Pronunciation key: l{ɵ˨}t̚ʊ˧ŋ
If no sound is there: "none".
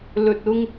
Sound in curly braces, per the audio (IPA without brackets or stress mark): ɵ˨